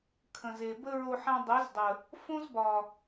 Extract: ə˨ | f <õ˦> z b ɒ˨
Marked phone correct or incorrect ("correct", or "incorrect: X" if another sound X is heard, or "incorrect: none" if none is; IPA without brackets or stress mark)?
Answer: correct